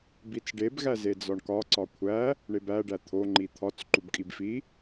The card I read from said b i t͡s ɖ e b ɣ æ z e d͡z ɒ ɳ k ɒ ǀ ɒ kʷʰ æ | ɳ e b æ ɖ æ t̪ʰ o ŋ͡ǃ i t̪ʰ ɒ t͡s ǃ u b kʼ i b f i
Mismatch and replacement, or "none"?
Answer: none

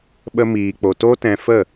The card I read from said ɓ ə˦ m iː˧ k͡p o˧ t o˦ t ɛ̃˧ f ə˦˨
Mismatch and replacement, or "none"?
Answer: none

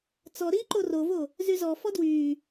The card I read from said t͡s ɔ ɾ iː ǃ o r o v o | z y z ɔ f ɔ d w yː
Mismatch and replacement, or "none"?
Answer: none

